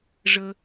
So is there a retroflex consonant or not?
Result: yes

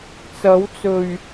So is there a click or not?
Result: no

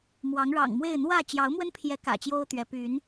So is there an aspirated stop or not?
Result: yes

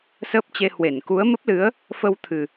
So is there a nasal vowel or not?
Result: no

